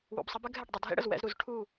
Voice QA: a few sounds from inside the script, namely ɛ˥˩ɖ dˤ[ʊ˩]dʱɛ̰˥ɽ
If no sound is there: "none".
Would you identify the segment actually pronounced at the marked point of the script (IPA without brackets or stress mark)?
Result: ʊ˩